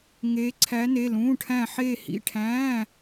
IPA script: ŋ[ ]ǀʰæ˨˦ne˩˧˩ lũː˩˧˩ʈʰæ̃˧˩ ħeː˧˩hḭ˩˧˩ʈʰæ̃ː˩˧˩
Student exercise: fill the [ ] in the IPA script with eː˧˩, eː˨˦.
eː˨˦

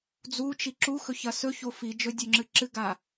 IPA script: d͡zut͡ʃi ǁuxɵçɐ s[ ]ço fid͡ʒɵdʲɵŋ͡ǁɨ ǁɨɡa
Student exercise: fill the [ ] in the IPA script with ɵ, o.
ɵ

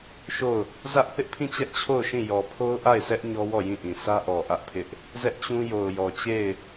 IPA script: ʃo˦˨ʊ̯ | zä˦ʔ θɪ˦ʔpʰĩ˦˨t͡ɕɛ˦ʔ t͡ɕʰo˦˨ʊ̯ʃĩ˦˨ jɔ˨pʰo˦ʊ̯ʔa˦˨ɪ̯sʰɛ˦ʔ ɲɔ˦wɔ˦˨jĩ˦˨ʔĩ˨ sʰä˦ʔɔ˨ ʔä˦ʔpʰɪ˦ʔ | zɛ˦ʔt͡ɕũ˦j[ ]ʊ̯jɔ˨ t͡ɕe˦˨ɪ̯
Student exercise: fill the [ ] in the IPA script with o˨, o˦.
o˨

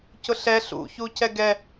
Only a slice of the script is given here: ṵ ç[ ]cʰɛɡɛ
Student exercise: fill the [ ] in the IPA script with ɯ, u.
u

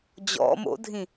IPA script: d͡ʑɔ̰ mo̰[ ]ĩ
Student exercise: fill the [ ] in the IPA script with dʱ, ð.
dʱ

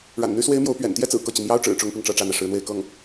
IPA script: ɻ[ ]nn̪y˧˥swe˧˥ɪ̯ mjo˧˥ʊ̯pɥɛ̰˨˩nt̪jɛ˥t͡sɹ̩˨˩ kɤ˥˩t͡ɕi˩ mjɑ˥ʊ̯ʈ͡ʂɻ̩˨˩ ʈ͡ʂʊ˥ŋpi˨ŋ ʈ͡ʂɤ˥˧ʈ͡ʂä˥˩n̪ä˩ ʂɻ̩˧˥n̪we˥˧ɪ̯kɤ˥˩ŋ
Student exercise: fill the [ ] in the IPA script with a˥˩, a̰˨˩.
a̰˨˩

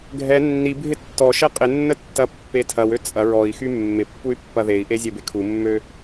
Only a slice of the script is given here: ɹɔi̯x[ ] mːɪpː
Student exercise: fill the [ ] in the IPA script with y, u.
y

